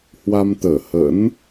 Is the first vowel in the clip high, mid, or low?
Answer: low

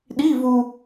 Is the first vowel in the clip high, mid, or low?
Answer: high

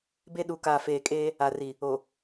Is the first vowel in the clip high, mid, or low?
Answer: mid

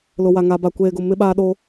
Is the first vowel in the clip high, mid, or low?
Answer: high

